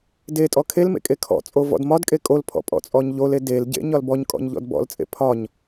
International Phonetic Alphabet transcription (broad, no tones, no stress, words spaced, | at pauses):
detʼɔ kʰel mḛkʼekʰɔ̰t͡sʼo vɔ̰dmɒdkʼe kʼolpʰɔ̰ pʼɔ̰t͡sʼɔɲʎole delɟḛ ɲɒlbɔɲkʼɔ̰ɲ ʎɔ̰dbɔ̰lt͡sʼḛ pʰɒɲ